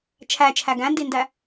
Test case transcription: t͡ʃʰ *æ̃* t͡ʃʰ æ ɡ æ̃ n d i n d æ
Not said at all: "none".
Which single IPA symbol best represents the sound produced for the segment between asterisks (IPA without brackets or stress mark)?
æ